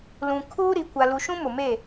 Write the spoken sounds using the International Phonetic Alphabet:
l ũ˨ kʰ uː˦ ɾ i˨ kʷ a˨ l u˨ ʃ ũ˦ m ʊ˨ m e˦˨

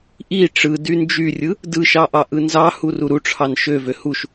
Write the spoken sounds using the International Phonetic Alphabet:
ʔ i ʈ͡ʂ ɯ d y n d͡ʒ y rʲ ɯ | d ɯ ʃ ɑ ʔ ɑ ʔ ɯ n z ɑ h u r u ɾ u ʈ͡ʂʰ ɑ n ʃ ø v ø h u ʃ

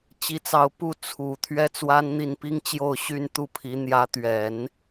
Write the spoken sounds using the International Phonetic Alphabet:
t͡ɕ i˧˥ t͡s ɑ˧˥ ʊ̯ p u˥˩ t͡sʰ u˨˩ t̪ʰ ɥ ɛ˥ t͡s w a˥ n n̪ i˥˩ n p i˥ ŋ t͡ɕ j o˥˧ ʊ̯ ɕ y˥˧ n t̪ u˥˩ pʰ i˧˥ n̪ j ä˧˥ t̪ ɥ ɛ˨˩˦ n

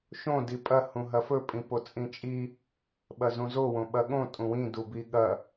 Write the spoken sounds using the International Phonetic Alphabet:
ʃ õ d i pʼ ɐ h ũ ɦ ɐ f ɵ pʼ ĩ p o t͡sʼ ĩ t͡ʃʼ i | ɓ ɐ z ũ z o w õ ɓ ɐ ɠ õ tʼ ũ w ĩ d u b i ɠ ɐ

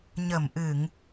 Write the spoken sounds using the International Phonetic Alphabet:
ɲ ə˧˩ m ʔ ɨ˧˩˨ ŋ

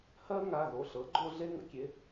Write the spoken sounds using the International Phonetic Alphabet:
h ɜ˦ ŋ a˩˧˩ ɣ o˩˧˩ ɬ ɤ˩˥ ɡ͡ǃ o˦ ɮ e˦ ŋ ə̰˩˧˩ kʲ e˩˧˩

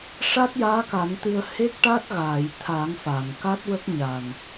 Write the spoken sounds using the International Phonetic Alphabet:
ʂ a˦˥ t̚ j aː˧˥ k a˨˩˦ n t̪ ɨ˧ ə̯ h e˦˥ k̚ ʈ a˦˥ t̚ ɣ aː˨˩˨ j t̪ʰ a˨˩˦ ŋ f aː˨˩˨ ŋ k a˦˥ t̚ w ə˦˥ k̚ ɲ a˨˩ n

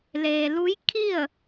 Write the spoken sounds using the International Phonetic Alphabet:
l eː˩ l u˧˥ j kʰ i˥˨ ə̯

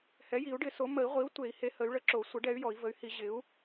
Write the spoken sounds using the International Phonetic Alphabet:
h ɛ˩˥ j i˨˩˦ u̯ ɖ ɪ˨˩˦ s o˩˥ m ə˨˩˦ i̯ ʁʷ i˩˥ u̯ tʷ e˨˩˦ i̯ h e˩˥ h ə˩˥ y̯ ɭ ə˩˥ ǁ o˨˩˦ sʷ ə˩˥ ɖ ɛ˩˥ y̯ j ɔ˨˩˦ i̯ v ə˩˥ y̯ h i˨˩˦ ʑ ɪ˩˥ u̯

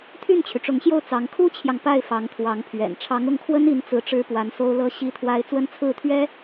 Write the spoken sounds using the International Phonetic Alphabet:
t̪ʰ y˥˩ n t͡ɕʰ y˩ ʈ͡ʂ ʊ˧˥ ŋ ɕ j o˥˩ ʊ̯ t͡s ɑ˧˥ ŋ kʰ u˥ t͡ɕʰ j ɑ˨ ŋ p a˥˩ ɪ̯ f ɑ˧˥ ŋ t̪ʰ w ɑ˧˥ ŋ pʰ ɥ ɛ̰˨˩ n ʈ͡ʂʰ ɑ˧˥ ŋ ʊ˥˩ ŋ kʰ w ə˥ n i˧˥ n t͡s ɹ̩˧˥ ʈ͡ʂ ɻ̩˥ p w a˧˥ n s o˥ ʊ̯ l ɤ˥ ɕ i˥ t̪ʰ w a˥ ɪ̯ t͡s w ə˥ n t͡sʰ ɹ̩˥˩ t̪ʰ ɥ ɛ˥

